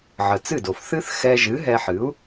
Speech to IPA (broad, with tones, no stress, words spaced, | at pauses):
ʕə˩t͡sɨ˥˩do˩f θɨ˥θxɛ˧ʒɨ˩˥ ɦɛ˧ħɨ˩˥u̯